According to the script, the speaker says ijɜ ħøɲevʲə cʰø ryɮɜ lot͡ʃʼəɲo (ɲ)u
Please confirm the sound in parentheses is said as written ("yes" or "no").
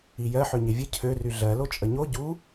no